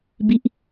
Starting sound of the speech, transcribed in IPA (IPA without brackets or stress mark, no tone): b